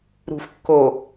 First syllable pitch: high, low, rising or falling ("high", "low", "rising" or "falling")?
low